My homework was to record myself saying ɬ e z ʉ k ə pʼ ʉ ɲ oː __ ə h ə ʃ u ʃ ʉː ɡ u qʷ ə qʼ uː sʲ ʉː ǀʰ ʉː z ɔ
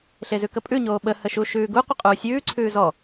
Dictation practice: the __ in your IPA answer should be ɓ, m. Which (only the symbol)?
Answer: ɓ